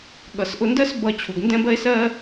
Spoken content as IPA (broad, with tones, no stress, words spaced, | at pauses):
ɠʌ˨sʔʊ˧ndɜ˦s bʌ˧ t͡ɕʰu˨ɡndɛ̃˦bɜ˦e̯ sɜ˧